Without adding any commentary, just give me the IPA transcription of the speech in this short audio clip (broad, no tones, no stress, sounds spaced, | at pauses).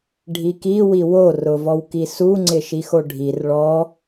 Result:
ɖʱ i k i w i w o r ʊ v ɔ w k i s u ŋ͡ǀ ɪ ʃ i x o ɖʱ i r ɭ ɔ